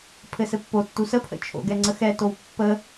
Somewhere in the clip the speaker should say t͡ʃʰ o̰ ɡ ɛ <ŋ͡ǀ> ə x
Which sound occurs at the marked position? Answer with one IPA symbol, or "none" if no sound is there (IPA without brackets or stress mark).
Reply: ŋ͡ǀ